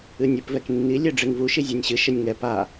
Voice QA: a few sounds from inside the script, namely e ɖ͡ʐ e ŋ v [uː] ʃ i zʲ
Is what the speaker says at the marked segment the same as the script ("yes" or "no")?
no